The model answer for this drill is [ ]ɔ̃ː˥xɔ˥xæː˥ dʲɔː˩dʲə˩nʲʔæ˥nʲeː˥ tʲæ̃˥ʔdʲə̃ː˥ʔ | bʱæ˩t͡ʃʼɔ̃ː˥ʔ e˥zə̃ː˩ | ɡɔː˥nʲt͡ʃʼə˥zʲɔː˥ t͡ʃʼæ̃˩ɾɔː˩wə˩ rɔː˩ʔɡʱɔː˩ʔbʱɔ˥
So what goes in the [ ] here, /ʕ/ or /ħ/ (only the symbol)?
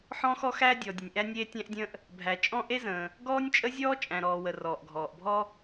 ħ